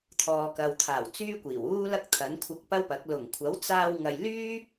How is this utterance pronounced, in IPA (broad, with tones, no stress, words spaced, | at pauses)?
t̪ʰɔː˨kɐ˨wt̪ʰaː˨˩w t͡syː˥kʷiː˨˩wuː˥lɐ˥k̚ t̪ʰɐ˨˥nkʷʰɐ˧k̚pɐ˥wpɐ˨˥k̚ lʊ˨˩ŋkʷʰɐ˨˥wt͡saː˧w ŋɐ˧j lyː˥